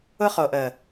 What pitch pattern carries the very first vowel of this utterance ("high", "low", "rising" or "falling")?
high